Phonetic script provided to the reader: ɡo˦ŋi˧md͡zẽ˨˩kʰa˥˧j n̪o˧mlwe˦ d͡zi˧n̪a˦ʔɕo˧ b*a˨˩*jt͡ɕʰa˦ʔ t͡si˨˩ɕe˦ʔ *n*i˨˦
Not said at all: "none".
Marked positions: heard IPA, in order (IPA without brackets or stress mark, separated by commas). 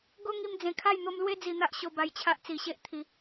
a˧, t̪ʰ